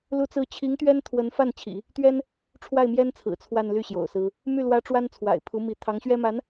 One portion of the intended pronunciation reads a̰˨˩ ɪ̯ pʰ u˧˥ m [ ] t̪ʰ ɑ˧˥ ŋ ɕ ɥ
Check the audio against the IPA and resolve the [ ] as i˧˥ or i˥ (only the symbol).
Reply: i˧˥